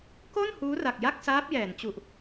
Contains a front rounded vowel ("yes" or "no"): no